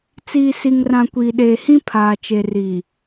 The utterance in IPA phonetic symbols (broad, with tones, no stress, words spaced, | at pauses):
t͡siː˨si˨ŋrã˨ kʷiː˨ɗeː˨hĩ˦ pʰaː˨t͡ʃe˨riː˨